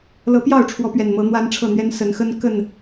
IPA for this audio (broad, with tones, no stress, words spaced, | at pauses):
lɤ˨˦pjɑ˥˨ʊ̯ʈ͡ʂʰwɔ˨˦ pɥɛ˨˩nmɤ˨˦n̪wa˦n ʈ͡ʂʰɤ˥˨n̪ɥɛ˦n sə˨˦nxə˦n kə˥˨n